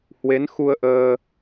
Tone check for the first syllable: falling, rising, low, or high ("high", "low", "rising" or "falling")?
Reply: rising